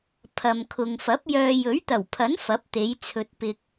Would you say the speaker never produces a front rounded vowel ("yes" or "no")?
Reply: no